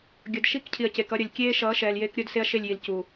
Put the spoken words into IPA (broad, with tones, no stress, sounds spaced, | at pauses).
ɡʲ ʌ˨ d ʃ i˦ k cʰ i˨ ɐ̯ c e˨ k ʌ˦ ɾʲ ʌ˨ lʲ kʲ eː˦ ʃ ʌː˨˦ ʃ ɛː˨ l j eː˦ k ɾʲ o˦ d s e˦ ɐ̯ ʃ e˦˨ lʲ j i˨ l c uː˨